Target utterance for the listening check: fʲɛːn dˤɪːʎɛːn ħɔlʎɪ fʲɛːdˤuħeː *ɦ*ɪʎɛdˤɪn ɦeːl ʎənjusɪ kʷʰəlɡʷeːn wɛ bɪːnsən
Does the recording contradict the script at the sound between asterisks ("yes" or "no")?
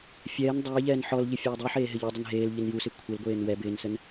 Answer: no